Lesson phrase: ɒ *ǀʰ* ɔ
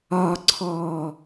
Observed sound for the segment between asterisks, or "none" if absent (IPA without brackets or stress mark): ǀʰ